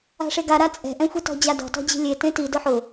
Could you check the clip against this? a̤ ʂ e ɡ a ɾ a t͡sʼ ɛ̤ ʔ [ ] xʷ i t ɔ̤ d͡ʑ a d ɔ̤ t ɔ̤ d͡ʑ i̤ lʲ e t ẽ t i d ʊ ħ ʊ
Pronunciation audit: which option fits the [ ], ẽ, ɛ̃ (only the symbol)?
ɛ̃